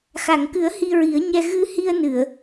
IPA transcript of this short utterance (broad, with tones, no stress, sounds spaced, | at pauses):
x a˨˩˨ ŋ k ɨ˨˩˦ ə̯ h i˧ ɹ i˨˩˦ ə̯ ɲ ɛ˧ ɣ ɨ˧ h i˧ ə̯ n ɨ˨˩˨ ə̯